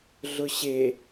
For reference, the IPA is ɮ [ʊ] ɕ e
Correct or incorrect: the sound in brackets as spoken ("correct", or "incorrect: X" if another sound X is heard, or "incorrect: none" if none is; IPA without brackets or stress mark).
correct